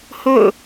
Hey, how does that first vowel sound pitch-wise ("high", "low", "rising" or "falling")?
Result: falling